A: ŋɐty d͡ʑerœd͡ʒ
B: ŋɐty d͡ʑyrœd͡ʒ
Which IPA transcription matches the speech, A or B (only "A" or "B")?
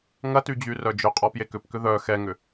B